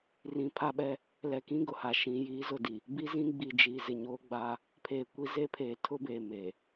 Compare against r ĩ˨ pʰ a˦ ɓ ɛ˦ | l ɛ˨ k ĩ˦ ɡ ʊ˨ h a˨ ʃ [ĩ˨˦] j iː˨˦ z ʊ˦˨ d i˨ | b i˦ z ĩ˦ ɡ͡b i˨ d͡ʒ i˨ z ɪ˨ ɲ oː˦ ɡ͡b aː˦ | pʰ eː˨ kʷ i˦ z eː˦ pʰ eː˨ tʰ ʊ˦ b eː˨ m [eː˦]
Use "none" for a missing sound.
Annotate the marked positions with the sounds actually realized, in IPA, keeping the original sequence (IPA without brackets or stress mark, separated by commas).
ĩ˨˦, eː˨